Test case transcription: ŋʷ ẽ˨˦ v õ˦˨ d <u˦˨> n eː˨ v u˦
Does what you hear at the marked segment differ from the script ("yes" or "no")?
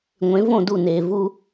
no